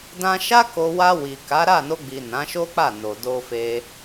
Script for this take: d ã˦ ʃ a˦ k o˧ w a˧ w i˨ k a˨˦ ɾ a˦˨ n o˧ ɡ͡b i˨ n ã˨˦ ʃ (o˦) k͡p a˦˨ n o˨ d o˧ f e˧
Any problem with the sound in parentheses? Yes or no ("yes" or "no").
no